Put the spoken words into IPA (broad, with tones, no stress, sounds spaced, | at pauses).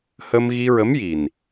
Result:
h ə˧ m ɣ i˧ ɹ ə˧˥ m j i˨˩ n